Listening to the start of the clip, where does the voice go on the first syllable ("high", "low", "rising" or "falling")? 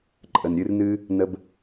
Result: low